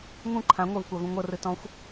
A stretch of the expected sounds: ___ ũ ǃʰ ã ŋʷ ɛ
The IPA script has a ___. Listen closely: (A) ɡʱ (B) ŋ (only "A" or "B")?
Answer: B